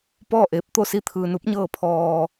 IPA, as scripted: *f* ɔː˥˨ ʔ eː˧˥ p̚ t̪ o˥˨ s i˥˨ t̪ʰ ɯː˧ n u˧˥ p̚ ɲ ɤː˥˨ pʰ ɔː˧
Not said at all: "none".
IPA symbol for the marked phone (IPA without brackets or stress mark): p